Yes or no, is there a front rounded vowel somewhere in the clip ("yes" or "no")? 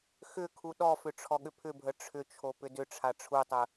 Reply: yes